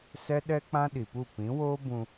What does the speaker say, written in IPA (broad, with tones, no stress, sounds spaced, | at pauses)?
s ɛ˦ ɗ ɛ˦ k͡p ã˦ ɗ i˨ p u˦˨ p ĩ˨˦ w oː˦ b ũ˧